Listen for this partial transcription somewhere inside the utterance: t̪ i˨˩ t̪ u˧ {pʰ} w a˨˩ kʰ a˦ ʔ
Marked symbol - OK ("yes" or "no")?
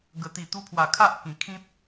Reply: yes